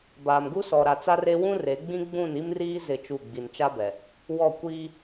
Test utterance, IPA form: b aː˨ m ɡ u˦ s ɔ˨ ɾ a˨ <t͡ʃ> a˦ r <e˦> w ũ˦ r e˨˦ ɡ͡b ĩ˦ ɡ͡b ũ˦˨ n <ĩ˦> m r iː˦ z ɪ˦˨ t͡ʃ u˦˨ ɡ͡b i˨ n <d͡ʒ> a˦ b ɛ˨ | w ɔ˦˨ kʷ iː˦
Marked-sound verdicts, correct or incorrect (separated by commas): incorrect, correct, incorrect, incorrect